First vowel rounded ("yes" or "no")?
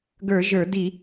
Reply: no